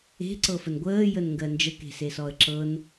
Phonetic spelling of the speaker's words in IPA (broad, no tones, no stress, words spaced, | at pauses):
e̤ǀɤfən ɡʷəːjənŋɡɜ nd͡ʒəke̤sesɔə̯ ǁɤn